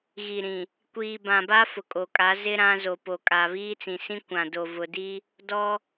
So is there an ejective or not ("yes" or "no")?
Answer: yes